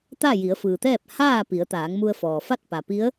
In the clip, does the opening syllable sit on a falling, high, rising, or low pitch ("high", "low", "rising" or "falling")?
falling